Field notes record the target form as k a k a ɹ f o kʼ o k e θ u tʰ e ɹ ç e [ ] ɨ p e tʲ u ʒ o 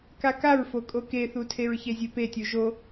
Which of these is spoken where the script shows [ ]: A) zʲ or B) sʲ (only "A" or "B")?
A